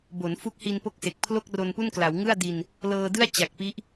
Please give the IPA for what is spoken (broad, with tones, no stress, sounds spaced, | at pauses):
b o˩˦ n f u˦˥ k̚ h i˧ n p o˦˥ k̚ s e˨˩ k̚ pʰ l o˥˩ k̚ r o˧ n p u˥˩ n k l a˩˦ w ŋ ɯ˥˩ a̯ d i˧ n | l ɤː˧ d ɯ˥˩ a̯ t͡ɕ a˨˩ k̚ p i˦˥ ʔ